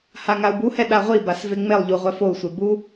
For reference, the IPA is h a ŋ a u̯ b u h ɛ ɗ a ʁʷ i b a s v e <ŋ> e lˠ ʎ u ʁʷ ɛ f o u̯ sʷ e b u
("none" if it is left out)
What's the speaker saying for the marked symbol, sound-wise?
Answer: ŋ͡m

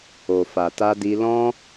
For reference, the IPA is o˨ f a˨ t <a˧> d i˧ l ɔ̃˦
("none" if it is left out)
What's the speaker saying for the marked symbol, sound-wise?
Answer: a˧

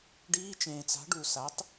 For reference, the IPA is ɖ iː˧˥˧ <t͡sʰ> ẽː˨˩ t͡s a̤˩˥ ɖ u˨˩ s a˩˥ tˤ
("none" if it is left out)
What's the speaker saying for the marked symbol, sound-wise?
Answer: t͡ʃ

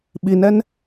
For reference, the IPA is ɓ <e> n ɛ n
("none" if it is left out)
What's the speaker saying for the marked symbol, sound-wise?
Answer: i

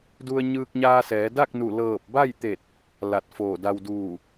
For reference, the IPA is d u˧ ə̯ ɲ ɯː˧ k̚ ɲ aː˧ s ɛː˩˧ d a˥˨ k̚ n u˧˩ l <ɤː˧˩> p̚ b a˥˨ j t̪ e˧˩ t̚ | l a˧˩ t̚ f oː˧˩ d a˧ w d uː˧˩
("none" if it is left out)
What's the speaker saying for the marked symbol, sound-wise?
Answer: ɤː˧˩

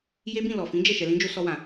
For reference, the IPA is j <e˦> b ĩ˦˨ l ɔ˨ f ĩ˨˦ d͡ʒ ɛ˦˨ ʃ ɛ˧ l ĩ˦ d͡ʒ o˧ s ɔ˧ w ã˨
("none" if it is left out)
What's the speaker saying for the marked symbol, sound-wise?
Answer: e˦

